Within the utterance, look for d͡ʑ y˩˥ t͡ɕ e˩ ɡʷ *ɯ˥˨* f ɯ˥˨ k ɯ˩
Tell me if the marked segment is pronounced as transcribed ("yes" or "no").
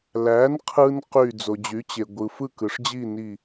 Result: no